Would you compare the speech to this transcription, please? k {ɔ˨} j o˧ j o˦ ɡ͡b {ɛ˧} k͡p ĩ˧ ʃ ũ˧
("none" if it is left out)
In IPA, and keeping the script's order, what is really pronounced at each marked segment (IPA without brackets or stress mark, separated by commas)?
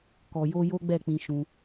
ɔ˨, ɛ˦˨